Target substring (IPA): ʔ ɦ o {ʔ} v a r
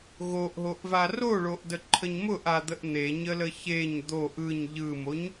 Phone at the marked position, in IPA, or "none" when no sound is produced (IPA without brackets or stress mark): ʔ